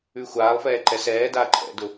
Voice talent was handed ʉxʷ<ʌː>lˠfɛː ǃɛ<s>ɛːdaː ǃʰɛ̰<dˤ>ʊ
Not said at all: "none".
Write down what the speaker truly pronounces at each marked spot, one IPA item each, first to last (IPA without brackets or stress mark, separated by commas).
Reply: aː, s, d